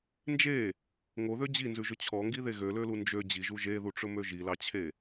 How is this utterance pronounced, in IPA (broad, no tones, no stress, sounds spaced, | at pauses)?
n d͡ʒ e | ŋ o ð ø d͡ʑ i n z ʉ ʒ ɵ t͡ɕʰ ɔ ŋ ɡ i ð e ɣ ø l ø l u n d͡ʒ ø d͡ʑ i ʒ u ʒ e ð u ʈ͡ʂ ɵ m ø ʒ i l ɑ t͡ɕʰ e